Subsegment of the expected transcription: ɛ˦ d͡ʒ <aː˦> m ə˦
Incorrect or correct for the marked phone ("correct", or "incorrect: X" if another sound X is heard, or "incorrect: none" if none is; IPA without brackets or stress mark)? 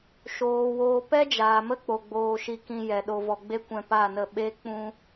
incorrect: aː˨